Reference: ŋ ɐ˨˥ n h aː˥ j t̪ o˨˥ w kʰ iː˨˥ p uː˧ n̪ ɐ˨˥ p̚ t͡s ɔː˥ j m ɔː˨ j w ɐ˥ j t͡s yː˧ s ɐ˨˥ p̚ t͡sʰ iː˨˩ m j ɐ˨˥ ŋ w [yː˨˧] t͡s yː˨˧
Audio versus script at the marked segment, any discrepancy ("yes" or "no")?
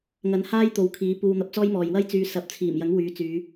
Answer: no